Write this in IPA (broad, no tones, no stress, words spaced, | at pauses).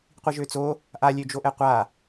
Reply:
qʷiʒøt͡so | ʔalʲød͡ʒo ʔɛqʷa